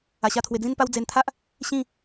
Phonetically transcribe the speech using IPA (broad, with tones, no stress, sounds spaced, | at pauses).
a˧ ɕ a˦ t̪ʰ w e˧ d͡z ĩ˦ n p a˦ w d͡z e˧ n t̪ʰ a˦ ʔ | ɕ ĩ˥˧